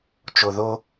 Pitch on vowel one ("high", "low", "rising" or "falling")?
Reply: low